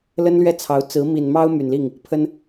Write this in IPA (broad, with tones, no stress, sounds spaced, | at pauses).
l ə˥ n l ɥ ɛ˥˩ t͡sʰ ɑ˧˥ ʊ̯ t͡s ɹ̩˧˥ m i˨˩ n m ɑ˥ ʊ̯ m y˨˩ n l i˥˩ ŋ | pʰ ə˥ n